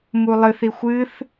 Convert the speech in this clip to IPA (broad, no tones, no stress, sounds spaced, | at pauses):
m u lˠ ɨ θ i xʷ ɨ θ